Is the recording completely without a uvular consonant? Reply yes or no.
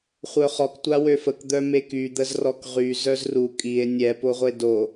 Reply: no